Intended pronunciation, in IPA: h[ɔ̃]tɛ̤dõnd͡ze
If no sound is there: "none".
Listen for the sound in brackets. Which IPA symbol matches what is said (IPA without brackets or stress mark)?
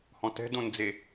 ɔ̃